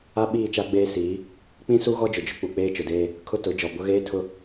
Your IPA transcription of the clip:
a˦ ɓ iː˦˨ t͡ʃ a˦ ɡ͡b eː˦ s iː˨˦ | k͡p ĩ˦ s u˦ ɣ ɔ˦ d͡ʒ ʊ˨ d͡ʒ ʊ˦ k͡p u˨ k͡p eː˦ t͡ʃ ʊ˨ d eː˦ | kʰ ʊ˦ t ʊ˨˦ d͡ʒ ɔ˨ b ʊ˦ ɣ eː˦ tʰ ʊ˦

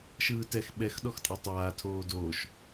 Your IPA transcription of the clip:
ʃ ɯː t ɛ x ɓ ɛ x ɗ ɔ x tʼ a tˤ aː tʰ oː d oː ʃ

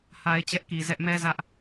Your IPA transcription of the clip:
h a˦ ɪ̯ t͡ɕ ɛ˦ ʔ k i˨ z ɛ˦ ʔ m ɛ˦ z ä˦ ʔ

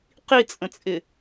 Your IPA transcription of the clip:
q i t͡sʼ ə̃ t͡sʼ ɪ

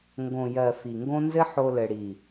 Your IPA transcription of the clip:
ŋ ɡ õ˨ j ɜ˨ f i˨ ŋ ɡ õ˦ n z ɘ˦ ħ o˧ l ɘ˨ ɽ i˨

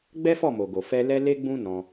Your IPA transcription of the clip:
ɡ͡b ɛ˦ f ɔ˦˨ m o˨ ɡ o˨ f ɛ˧ l ɛ˦ l e˦ ɡ͡b ũ˦ n ɔ̃˧

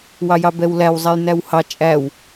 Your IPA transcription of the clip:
w ɑ j ɑ b ɛ w l æ w zˤ æ j n æ w h ɑ t͡ʃʼ æ w

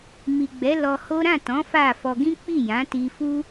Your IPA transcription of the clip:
m i˨ ɡ͡b ɛ˨˦ l ɔ˧ h o˦ ɾ ã˦˨ t ɔ̃˨˦ f a˦˨ f ɔ˧ ɡ ĩ˦ k͡p i˦˨ j ã˨˦ t i˧ f u˦

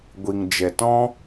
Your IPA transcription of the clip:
ɡʷ i˨ ŋ d͡ʒ ɛ˨ t ɔ̃˦

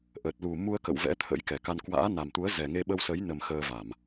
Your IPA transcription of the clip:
ʔ ə˨˩ t̚ l u˨˩ m u˧ ə̯ k ə̰˧˨ w v ɛ̰˧˥ t̪ʰ ə̰˧˥ j k ɛ˨˩ k a˧ n k w a̰ː˧˥ n a˨˩ m t̪ u˨˦ ə̯ z ɛ˨˩ ŋ e˧ ɓ ə˧ w s ə˨˦ j n ə˨˩ m x əː˧ v a˧˩˨ m

